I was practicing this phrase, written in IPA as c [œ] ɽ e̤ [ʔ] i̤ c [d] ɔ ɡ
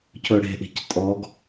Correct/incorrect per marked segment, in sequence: incorrect: ɵ, correct, incorrect: tʼ

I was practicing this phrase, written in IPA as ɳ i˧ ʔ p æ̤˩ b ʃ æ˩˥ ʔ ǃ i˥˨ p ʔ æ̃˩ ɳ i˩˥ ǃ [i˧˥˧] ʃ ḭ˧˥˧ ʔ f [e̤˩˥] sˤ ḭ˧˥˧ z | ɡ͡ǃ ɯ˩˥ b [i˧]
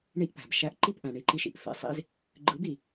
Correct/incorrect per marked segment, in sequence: incorrect: i˧, incorrect: ḛ˩˥, incorrect: i˩

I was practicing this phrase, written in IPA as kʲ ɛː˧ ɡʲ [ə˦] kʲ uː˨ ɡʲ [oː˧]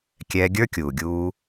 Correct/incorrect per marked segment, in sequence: incorrect: ə˞˦, incorrect: uː˧

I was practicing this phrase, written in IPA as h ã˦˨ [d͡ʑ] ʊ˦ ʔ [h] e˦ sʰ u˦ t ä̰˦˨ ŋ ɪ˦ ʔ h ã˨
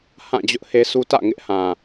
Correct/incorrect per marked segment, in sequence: correct, correct

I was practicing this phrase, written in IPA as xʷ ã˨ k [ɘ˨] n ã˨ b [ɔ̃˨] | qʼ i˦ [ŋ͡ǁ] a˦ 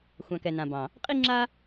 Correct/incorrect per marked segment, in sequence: incorrect: ɛ˨, incorrect: ɑ̃˨, correct

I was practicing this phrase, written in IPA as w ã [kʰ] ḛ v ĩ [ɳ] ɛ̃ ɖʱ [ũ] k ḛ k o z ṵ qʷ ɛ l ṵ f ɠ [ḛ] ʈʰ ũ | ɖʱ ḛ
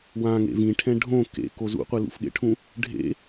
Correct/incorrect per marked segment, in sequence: incorrect: ŋ, incorrect: ʈʰ, incorrect: õ, correct

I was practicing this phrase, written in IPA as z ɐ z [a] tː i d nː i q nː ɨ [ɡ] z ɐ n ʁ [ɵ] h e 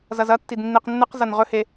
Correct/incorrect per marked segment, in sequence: incorrect: ɐ, incorrect: q, correct

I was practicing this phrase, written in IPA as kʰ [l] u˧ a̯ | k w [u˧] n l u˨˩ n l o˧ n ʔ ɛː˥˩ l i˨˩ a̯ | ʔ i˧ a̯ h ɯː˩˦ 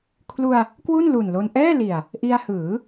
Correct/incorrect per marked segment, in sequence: correct, incorrect: u˥˩

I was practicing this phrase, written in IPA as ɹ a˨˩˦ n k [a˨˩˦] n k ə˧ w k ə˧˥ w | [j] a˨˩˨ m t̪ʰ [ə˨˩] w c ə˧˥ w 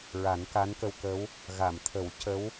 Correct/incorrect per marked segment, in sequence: incorrect: a˧˥, incorrect: ɣ, incorrect: ə˨˩˦

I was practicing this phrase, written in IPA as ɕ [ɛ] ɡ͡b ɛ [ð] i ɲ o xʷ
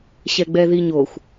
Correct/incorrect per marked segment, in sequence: correct, correct

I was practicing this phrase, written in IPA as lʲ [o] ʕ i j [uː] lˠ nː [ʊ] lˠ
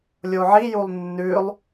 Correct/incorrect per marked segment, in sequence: correct, incorrect: u, incorrect: ʉ

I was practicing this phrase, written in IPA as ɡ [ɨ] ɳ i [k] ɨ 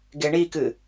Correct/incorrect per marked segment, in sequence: incorrect: e, correct

